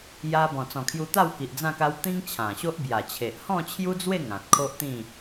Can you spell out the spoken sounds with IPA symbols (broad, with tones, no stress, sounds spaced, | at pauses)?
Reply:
j a˧ b ɔ̃˨˩ t͡s ɔ̃˨˩ kʰ j u˧ t̪ a˥˧ w k i˨ ʔ d͡z ã˥˧ k a˦ w t̪ ĩ˦ ŋ t͡ɕʰ ã˨˩ ɕ o˦ ʔ b j a˨˩ t͡ɕʰ e˨ ʔ h ɔ̃˥˧ t͡ɕʰ j u˦ d͡z w e˥˧ ŋ ã˨ t̚ kʰ o˦ ʔ t̪ ĩ˥˧